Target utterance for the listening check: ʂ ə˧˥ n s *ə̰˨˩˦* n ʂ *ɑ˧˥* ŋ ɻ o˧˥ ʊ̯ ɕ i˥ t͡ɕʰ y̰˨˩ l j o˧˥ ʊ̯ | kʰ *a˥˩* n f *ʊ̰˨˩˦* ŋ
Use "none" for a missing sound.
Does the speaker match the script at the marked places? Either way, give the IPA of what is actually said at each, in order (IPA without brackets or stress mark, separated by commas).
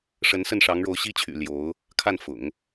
ə˥˩, ɑ˧˥, a˥˩, ʊ̰˨˩˦